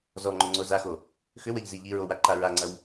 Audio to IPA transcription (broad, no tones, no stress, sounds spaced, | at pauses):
z ɔ ŋ͡ǃ ʏ ŋ͡ǀ o z a x o | x ʏ w ɜ ʎ z i ʎ i ɹ o w a ǃ a ɹ a ŋ͡ǀ ɐ w